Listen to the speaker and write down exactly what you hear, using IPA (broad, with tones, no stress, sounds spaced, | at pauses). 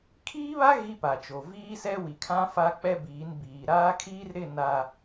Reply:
kʰ iː˦ β a˦ ɣ i˦ p a˨ t͡ʃ o˨ v iː˦ s ɛ˦ w i˨ kʰ ã˦ f a˦ k͡p ɛ˦ b iː˨˦ n b iː˨ ɾ aː˦ kʰ iː˦ r ɾ ɪ˦˨ n a˨